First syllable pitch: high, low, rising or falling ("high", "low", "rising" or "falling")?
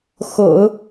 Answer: low